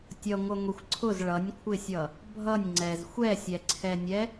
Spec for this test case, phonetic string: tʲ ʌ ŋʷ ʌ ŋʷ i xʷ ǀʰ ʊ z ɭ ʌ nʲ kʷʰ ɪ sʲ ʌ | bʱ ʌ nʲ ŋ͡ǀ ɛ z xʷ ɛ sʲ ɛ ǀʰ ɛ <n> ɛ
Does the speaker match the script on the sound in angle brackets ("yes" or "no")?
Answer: no